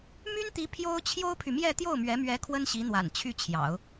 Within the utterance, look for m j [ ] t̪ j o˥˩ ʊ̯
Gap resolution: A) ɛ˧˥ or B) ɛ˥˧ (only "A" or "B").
B